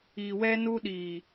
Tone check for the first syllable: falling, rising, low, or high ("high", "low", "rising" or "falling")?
low